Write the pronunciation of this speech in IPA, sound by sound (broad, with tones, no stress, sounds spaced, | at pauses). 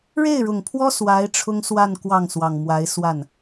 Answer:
ɻ e˥˩ ɪ̯ ɻ ʊ˨˩ ŋ pʰ w ɔ˥ s w a˧˥ ɪ̯ ʈ͡ʂʰ ʊ˥ ŋ s w a˥˧ n k w ɑ˥˩ ŋ s w ɑ˨˩ ŋ m w a˧˥ ɪ̯ s w a˥˩ n